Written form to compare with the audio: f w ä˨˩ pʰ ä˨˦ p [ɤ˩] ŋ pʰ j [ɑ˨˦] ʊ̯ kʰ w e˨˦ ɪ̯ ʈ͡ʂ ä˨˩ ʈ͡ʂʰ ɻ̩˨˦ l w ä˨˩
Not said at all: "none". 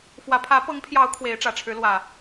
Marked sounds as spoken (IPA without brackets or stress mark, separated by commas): ɤ˨˦, ɑ˨˦